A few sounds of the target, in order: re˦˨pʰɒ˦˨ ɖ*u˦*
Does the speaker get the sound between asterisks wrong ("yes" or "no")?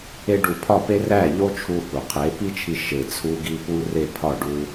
no